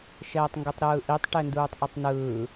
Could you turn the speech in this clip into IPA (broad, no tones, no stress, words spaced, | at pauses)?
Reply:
ʃɛːtˤŋɡutˤɾɯːʔitˤ ʈɛnduːtˤʔotˤnɯː